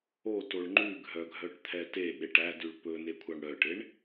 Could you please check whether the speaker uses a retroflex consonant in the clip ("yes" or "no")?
yes